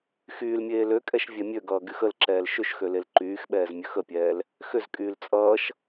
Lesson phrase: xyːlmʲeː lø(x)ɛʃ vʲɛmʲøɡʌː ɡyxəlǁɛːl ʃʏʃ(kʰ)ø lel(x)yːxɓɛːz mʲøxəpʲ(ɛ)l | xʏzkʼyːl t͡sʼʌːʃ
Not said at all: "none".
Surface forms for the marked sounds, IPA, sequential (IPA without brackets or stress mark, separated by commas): kʼ, x, ǃ, ɛː